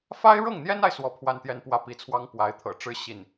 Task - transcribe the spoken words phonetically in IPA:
f a˥ ɪ̯ ɻ ɤ˥˩ ŋ n̪ j ɛ˥ n a˨ ɪ̯ s w ɔ˥ pʰ w a˥˧ n t̪ j ɛ˥˧ n p w ä˥˩ p i˧˥ t͡sʰ w ɑ˥ ŋ p w a˧˥ ɪ̯ t̪ʰ ɤ̰˨˩ ʈ͡ʂ ɻ̩˥˧ ɕ i˥˩ n

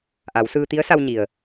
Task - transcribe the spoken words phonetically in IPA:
ʔ a˩˧ w s ɯː˧ t̪ i˧˥ ə̯ s a˧ w ɲ i˩ ə̯

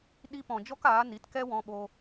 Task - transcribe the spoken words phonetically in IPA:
ɗ i˧ p ɔ̃˨ d͡ʒ ɔ˦ k aː˨˦ n i˨˦ t k ɛ˦ w ɔ̃˧ ɓ oː˧

